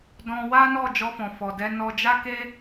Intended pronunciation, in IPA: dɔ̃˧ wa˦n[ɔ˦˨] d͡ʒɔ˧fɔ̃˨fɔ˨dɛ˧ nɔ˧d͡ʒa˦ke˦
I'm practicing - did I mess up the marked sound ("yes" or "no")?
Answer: no